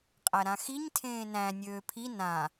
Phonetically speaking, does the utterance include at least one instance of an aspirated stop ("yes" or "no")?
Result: yes